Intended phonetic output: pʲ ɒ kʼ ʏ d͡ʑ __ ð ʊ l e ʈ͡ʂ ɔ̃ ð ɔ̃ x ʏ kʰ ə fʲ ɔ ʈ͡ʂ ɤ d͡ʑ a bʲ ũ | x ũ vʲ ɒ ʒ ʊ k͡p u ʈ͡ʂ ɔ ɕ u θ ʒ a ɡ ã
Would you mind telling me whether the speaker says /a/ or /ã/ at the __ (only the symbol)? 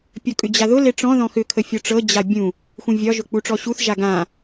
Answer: a